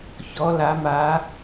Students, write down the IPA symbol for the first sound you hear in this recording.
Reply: ç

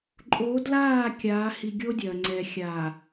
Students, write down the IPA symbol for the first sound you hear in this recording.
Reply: ǃʼ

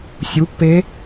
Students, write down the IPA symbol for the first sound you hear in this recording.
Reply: sʲ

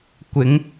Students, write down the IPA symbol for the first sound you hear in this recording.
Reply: kʷ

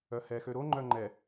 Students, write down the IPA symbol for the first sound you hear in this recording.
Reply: œ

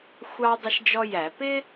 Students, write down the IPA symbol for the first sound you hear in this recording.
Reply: xʷ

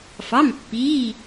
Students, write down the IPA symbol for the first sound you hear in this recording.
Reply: f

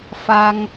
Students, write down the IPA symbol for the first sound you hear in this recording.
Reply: f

